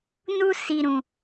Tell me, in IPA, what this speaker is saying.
n u˧ s i˨ ɾ ũ˨

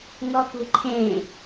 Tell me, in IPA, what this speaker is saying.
ŋ ɔ k ṳ ǃʰ ẽ

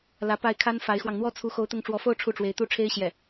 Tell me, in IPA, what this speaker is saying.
l ä˧˥ p a˥˩ ɪ̯ kʰ a˥ n f a˧˥ ɪ̯ x w ɑ˧ ŋ n̪ w ɔ˥ t͡sʰ u˧˥ x o˧˥ ʊ̯ t̪ ʊ˧˥ ŋ ʈ͡ʂ w ɔ˧˥ f o˥˧ ʊ̯ ʈ͡ʂʰ u˥˩ ʈ͡ʂ w e˧˥ ɪ̯ t̪ u˥˩ ʈ͡ʂʰ e˥ ɪ̯ ɕ j ɛ˥˩

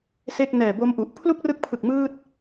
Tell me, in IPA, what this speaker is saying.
s e˥˩ k̚ n ɛː˨˩ b o˦˥ m ʔ u˨˩ ʔ pʰ l u˥˩ k̚ r ɯ˦˥ k̚ pʰ ɯ˨˩ k̚ m ɯː˥˩ t̚

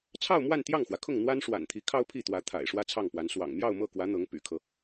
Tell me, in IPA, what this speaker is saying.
t͡sʰ ɑ˥˧ ʊ̯ m w a˥˧ n t̪ j ɑ˥˩ ŋ x w ä˩ kʰ ʊ˥˩ ŋ n̪ w a˥ n ʂ w a̰˨˩ n t̪ʰ i˧˥ kʰ ɑ˥ ʊ̯ pʰ i˥˩ t̪ w ä˧˥ t̪ʰ a̰˨˩ ɪ̯ ʂ w ä˥ t͡sʰ ɑ˥˩ ŋ p w a˧˥ n s w ɑ̰˨˩ ŋ m j ɑ˥˧ ʊ̯ m ɤ˥˩ k w ä˧˥ n̪ ɤ˧˥ ŋ p y̰˨˩ kʰ ɤ˦

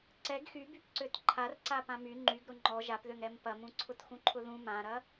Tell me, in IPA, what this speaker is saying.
ǀ ɛ ɡ x y b y p ǀ ø t ǃʰ a r ǀ a p ã m y ŋ͡ǃ y ɡ ɾ ʊ ŋ͡ǃ ɔ ʒ a p ð ø ŋ ɾ ɛ m p ɐ m ũ ǀʰ ʊ t x ũ ǃʰ ʊ ð ũ m ã ɾ ɐ

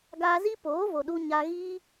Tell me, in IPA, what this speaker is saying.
ɡ aː˧ z i˦ p oː˨˦ v o˨ ɗ u˧ ɲ a˧ ɣ iː˦

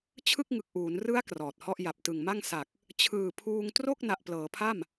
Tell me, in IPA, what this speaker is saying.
t͡ɕʰ ɯ˥˩ k̚ ŋ ɯ˨˩ k̚ ʔ uː˩˦ n r ɯ˦˥ a̯ k r ɔː˨˩ t̚ h ɔ˥˩ ʔ j a˨˩ p̚ t ɯ˨˩ ŋ m a˥˩ ŋ s a˨˩ k̚ | t͡ɕʰ ɯː˨˩ pʰ uː˧ ŋ t r o˥˩ k̚ n a˨˩ ʔ p l ɤː˩˦ pʰ a˥˩ m

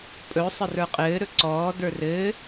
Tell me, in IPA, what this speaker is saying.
pʼ ɵ sˤ ə r ə˞ qʼ ɘː ɾ ɵ ǀ ɔː d ə˞ r ɘː

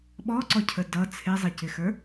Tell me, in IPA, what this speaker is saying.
ɓ ɔ ǀ ɔ cʰ ə d ʌ t͡sʰ ɪ zˤ ɪ c ɪ x ə˞

